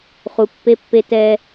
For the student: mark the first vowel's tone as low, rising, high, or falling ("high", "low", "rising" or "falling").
low